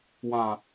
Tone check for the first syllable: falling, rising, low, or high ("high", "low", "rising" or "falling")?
low